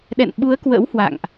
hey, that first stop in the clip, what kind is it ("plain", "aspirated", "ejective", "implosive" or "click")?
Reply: implosive